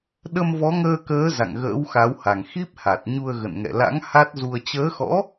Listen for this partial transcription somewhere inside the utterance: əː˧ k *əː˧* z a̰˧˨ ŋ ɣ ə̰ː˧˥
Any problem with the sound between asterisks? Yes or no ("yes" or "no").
yes